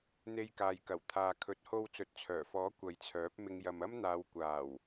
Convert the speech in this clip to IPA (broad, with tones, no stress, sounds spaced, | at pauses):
n̪ e˧ j k aː˨ j k ɐ˨˩ w t̪ʰ aː˨ kʰ ɵ˨˥ t̚ h o˧ w t͡s ɵ˨˥ t̚ t͡sʰ œː˨˩ f ɔː˨˥ kʷ ɐ˨ j t͡sʰ œː˨˥ p̚ m ɪ˨˧ ŋ j ɐ˨ m ɐ˥ m n̪ aː˨˧ w kʷ aː˨˩ w